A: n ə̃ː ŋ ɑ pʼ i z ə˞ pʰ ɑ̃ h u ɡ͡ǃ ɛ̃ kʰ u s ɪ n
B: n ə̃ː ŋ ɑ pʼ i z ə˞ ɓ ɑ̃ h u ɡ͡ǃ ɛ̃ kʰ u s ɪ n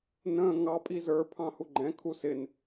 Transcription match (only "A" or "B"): A